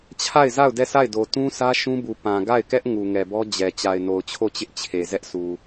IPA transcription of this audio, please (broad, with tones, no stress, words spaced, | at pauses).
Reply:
t͡ɕʰa˦˨ɪ̯za˦˨ʊ̯ dɛ˦˨sa˦˨ɪ̯do˨ tũ˦sä˦ ʃũ˦bu˨ pã˨ ɡa˦˨ɪ̯kɛ˦ʔ ŋu˨ŋɛ˨bɔ˦ d͡ʑɛ˨ t͡ɕa˨ɪ̯no˨ʊ̯t͡ɕʰo˦˨t͡ɕɪ˦ʔ t͡ɕʰe˨zɛ˦ʔsu˨